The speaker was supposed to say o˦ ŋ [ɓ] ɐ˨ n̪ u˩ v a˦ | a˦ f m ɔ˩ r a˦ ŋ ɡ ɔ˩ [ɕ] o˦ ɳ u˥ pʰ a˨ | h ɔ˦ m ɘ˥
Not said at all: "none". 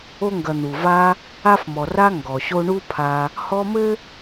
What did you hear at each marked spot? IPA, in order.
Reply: ɡ, ɕ

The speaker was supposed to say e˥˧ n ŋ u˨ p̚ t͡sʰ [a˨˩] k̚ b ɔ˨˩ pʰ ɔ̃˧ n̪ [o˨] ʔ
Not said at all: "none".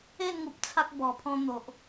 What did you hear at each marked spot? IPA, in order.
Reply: a˦, o˨

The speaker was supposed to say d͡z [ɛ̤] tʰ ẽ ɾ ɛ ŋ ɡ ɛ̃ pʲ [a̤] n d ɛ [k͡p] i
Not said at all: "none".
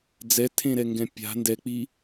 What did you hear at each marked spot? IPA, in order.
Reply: ɛ, a̤, k͡p

